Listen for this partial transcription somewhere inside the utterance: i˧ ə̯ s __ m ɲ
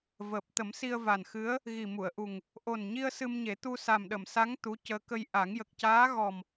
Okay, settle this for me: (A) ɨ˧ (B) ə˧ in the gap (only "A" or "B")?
A